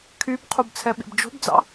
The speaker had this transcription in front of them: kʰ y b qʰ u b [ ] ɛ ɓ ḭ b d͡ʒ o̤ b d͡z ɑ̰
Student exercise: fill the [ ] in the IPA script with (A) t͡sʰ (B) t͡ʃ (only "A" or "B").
A